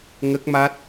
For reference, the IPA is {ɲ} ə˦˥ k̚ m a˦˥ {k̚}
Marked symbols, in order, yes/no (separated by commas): no, no